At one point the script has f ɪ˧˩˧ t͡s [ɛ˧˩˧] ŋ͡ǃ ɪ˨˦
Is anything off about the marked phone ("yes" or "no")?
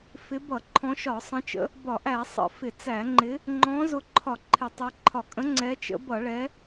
yes